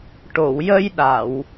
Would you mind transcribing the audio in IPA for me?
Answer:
ʈ o˨˩˨ w j ə˧ j ɗ a˨˩˨ w

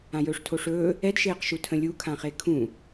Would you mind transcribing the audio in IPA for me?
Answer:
ã j ɵː ʂ tʰ o ʂ ɵː | ɛ d ʃ eː q ʃ u tʰ ə̃ lʲ u kʰ ã χ e kʰ ũ

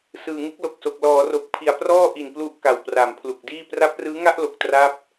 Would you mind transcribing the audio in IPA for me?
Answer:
s ɯː˨˩ ŋ ɯ˥˩ k̚ l o˨˩ k̚ s o˨˩ k̚ l ɔː˩˦ r o˨˩ k̚ pʰ i˨˩ a̯ p r ɔː˥˩ ʔ i˨˩ n p l u˦˥ ʔ k a˨˩ w p r a˩˦ m pʰ l u˨˩ k̚ d iː˥˩ p r a˦˥ p̚ r ɯː˦˥ ŋ a˥˩ ʔ l o˨˩ k̚ t r a˥˩ p̚

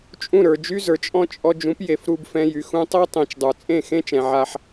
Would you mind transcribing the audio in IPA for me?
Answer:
t͡ʃʼ ũ˦˨ ɾ ə˞˨ d͡ʒ y˦ z ə˞˨ t͡ʃʼ ɔ̃˦ t͡ʃʼ ɔ˧ d͡ʒ ũ˨˦ p j e˨ f ɾ u˧ b f ɛ̃˧ j y˨ x ũ˧ tˤ e˦ tˤ ẽ˨ t͡ʃ dˤ ə˞˨ t͡sʼ ẽ˦˨ x ẽ˦ t͡ʃ ɛ̃˨ ʕ a˧ ħ

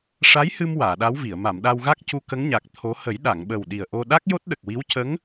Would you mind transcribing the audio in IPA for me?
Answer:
ʂ a˧˥ j h ɨ˧ m w aː˨˩˨ ɗ a˧˥ w v i˨˩˨ ə̯ m a˨˩˨ m ɗ a˧ w ɣ a˦˥ k̚ c u˧ k ə˧˥ ŋ ɲ a˨˩ k̚ t̪ʰ o˧˥ h ə˨˩˦ j ɗ a˨˩˨ ŋ ɓ ə˨˩ w ɗ i˨˩ ə̯ ʔ o˧ ɗ a˦˥ k̚ j o˦˥ t̚ ɗ ə˨˩ k̚ w i˧˥ w c ə˧˥ ŋ

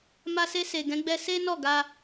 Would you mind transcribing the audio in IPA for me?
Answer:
m a˧ s e˧ s e˨ ɡ ɛ̃˨˦ ɡ͡b ɛ˧ s e˦ n ɔ˦˨ ɡ a˧

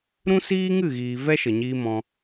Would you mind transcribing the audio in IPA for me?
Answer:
ɾ ũ˦ s iː˦ ŋ ɨ˦˨ ɣ iː˨ v ɛ˦ ʃ ə˨ ɲ iː˧ m ɔ̃˧

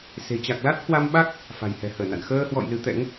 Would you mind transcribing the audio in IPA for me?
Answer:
s e̤˨˩ t͡ɕ a˨˩ k̚ l a˦˥ t̚ h w a˧ m ɓ a˦˥ k̚ | f a̤˨˩ j h ɛ̤˨˩ h əː˧˩ n a̰˧˨ n x əː˧ h w ɔ̰˧˨ j l ɨ˨˦ t̪ ɛ̰˧˥ ŋ

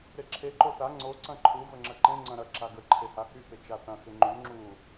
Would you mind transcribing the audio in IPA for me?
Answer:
ɾ e ǁʰ e ǃ o θ a ŋ͡ǀ o ǀ ɐ̃ ǃʰ u v ə ŋ͡ǁ ə ǃ ẽ ŋ͡ǀ ɐ̃ ɾ ɐ ǁ a ɡ ə ǃʰ e h a h y p ɪ t͡ʃ a θ ɐ̃ x ɪ ŋ͡ǃ y ŋ͡ǁ u

